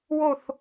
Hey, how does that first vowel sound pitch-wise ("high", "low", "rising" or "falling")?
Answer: falling